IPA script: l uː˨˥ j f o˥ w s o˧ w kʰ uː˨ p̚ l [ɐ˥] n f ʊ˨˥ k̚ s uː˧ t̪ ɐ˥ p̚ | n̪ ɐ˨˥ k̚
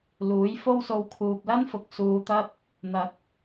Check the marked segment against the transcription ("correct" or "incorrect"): correct